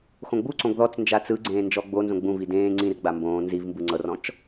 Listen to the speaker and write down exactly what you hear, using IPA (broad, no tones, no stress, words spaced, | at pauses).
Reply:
xõɡ͡buǀõɡ ðɔt͡s nd͡ʒat͡sɯɡ͡ǀẽː nd͡ʒɔɡ͡bonzõ ɡ͡bũvi dẽː ŋ͡ǀĩrɡ͡ba mbõː nzivmbɯ ŋ͡ǀɤrɔ̃t͡ʃ